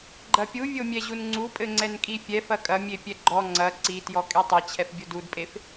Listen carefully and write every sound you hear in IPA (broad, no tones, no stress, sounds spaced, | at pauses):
ɡ͡ǃ ɐ pʲ u vʲ o mʲ ɛ ʑ u n ŋ͡ǀ u pʼ ɘ ŋ͡ǀ ɛ n kʼ i fʲ ɛ f ɐ kʼ ɐ mʲ e pʲ ɛ ɡ͡ǃ ɔ ŋ͡ǀ ɐ ǀ i t j ɔ kʼ e tˤ e t͡ɕʰ ɛ f bʲ o d u d pʼ e f